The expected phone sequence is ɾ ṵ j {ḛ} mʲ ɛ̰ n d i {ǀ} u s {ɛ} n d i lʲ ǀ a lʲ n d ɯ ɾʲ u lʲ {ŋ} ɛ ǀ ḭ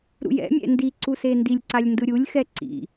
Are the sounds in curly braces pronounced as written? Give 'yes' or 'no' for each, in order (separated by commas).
no, yes, no, no